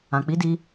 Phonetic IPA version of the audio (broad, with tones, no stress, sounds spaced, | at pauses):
ã˨ k͡p i˨˦ d i˧